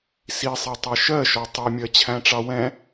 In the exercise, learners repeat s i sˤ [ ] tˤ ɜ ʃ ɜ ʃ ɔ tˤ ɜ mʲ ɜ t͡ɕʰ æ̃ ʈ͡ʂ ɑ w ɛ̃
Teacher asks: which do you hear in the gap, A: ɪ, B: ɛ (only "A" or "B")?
B